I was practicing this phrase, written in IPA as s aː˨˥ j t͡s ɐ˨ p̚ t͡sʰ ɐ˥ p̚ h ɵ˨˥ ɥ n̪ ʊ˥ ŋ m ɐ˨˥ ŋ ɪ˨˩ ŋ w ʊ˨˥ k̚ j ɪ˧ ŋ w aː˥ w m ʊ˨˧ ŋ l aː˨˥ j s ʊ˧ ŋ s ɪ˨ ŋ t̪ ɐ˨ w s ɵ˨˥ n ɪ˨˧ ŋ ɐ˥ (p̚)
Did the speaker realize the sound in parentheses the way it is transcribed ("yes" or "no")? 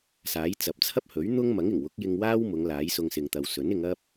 yes